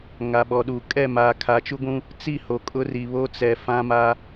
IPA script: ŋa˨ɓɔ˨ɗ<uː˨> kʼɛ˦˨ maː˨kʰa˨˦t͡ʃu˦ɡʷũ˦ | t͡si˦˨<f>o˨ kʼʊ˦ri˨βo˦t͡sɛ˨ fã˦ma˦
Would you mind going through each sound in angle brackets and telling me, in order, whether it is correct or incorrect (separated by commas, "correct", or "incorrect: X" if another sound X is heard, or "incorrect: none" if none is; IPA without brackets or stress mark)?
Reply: correct, incorrect: h